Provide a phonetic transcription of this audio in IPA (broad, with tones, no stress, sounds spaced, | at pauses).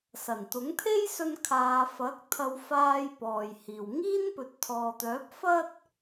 s ɐ˨˩ n t̪ ʊ˨˥ ŋ t̪ʰ e˥ j s ɵ˧ n kʰ aː˨˧ f ɐ˨˥ k̚ t̪ʰ ɐ˧ w f aː˧ j p ɔː˨ j h iː˨ w ŋ iː˥ n p ɵ˨ t̚ t̪ʰ ɔː˨ t̪ œː˨˥ p̚ f ɐ˥ t̚